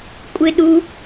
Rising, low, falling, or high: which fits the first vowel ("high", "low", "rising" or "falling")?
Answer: low